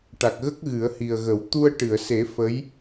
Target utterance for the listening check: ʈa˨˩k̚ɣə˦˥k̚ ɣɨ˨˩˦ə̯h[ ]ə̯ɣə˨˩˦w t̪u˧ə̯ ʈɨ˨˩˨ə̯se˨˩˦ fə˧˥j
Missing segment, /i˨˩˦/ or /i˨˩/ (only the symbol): i˨˩